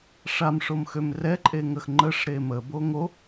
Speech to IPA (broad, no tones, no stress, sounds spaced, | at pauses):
ʂ a m ʂ o m x ø m r ɛ ǃʼ e ŋ ə x ŋ͡ǃ ə ʂ ɾ e m ə b o ŋ o